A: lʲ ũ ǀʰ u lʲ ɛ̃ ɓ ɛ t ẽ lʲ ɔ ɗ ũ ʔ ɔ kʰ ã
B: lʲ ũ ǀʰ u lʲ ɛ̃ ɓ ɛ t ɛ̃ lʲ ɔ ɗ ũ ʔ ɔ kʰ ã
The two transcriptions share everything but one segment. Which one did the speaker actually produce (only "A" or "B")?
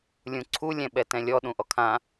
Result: B